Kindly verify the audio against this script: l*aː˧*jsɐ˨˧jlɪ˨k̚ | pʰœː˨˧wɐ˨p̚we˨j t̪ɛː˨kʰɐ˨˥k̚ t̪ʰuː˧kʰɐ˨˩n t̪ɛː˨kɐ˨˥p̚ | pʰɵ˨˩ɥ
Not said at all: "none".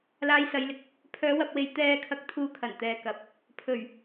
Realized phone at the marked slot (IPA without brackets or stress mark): aː˧